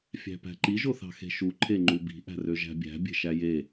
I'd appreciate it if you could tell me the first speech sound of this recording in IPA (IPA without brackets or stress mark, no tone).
fʲ